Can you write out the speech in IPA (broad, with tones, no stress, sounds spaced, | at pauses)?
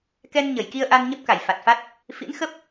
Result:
k ɛ˧ n ɲ ə˧˩ j k i˧ ə̯ ʔ a˧ n ɲ ə˦˥ p̚ k a˧˩ j f a˨˩ t̚ f a˦˥ t̚ | f ḭ˧˥ n x ə˦˥ p̚